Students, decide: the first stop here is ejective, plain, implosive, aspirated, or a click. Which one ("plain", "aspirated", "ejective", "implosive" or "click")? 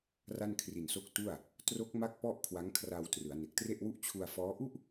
aspirated